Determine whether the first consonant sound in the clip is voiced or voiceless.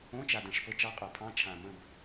voiceless